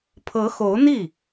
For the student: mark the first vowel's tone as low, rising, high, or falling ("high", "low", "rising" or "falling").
rising